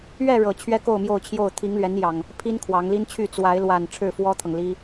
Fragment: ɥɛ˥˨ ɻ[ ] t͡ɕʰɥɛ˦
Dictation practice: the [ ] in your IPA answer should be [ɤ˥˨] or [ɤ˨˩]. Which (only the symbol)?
ɤ˨˩